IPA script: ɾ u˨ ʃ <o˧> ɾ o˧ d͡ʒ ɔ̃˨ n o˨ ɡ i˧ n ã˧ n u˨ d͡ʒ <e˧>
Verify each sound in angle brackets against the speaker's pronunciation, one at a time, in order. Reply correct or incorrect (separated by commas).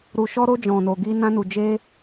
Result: incorrect, correct